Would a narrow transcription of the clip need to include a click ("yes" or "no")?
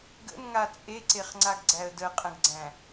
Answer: yes